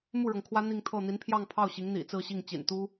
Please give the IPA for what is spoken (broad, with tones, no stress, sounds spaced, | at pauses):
m u˥˩ ɻ ɤ˩ ŋ kʰ w ä˥ n̪ i˥˧ ŋ t̪ʰ ɤ˥˩ n̪ i˧˥ n pʰ j ɑ˥˧ ŋ pʰ ɑ˥˩ ʊ̯ ɕ i˧˥ ŋ n̪ ḭ˨˩ t͡s ɹ̩˥˧ ɕ i˥˩ ŋ t͡ɕ ḭ˨˩ n t̪ u˥